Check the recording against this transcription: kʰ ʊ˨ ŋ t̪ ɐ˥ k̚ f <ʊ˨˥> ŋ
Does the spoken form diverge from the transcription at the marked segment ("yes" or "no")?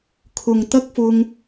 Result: yes